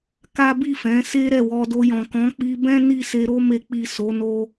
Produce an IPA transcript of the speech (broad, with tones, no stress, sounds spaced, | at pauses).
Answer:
k a˦ b i˦˨ f ɛ̃˨˦ s e˦ ɾ ɛ˦˨ w ɔ˧ d o˧ j ɔ̃˨ k ɔ̃˨˦ k͡p i˧ b ɛ̃˦ n i˦˨ s e˧ ɾ o˦ m e˧ k͡p i˨ s o˨˦ n o˦